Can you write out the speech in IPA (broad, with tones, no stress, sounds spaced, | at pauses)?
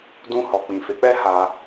d ũ˧ h ɔ˨ k͡p ĩ˨ f e˨˦ k͡p ɛ˦ h a˧